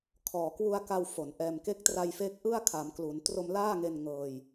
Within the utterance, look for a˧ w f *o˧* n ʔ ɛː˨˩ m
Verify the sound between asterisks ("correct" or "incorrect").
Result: incorrect